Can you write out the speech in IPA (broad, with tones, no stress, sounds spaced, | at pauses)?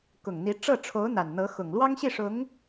k ʊ˨˩ ŋ n̪ i˧˥ ʈ͡ʂ ɤ˥˩ ʈ͡ʂʰ o˧˥ ʊ̯ n̪ a˨˩ n n̪ ɤ˧˥ x ʊ˨˩ ŋ l w ɑ˥ ŋ ɕ i˥˩ ʂ ʊ˧˥ ŋ